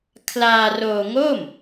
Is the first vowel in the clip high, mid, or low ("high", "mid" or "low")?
low